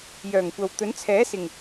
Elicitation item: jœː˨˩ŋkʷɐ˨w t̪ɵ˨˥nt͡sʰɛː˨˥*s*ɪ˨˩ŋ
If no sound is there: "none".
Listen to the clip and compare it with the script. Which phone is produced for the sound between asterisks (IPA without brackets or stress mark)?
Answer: s